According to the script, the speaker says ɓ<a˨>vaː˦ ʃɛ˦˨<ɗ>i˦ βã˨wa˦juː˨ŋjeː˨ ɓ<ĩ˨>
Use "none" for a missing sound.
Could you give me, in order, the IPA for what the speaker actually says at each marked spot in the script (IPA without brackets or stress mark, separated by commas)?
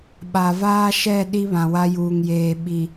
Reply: a˨, ɗ, i˨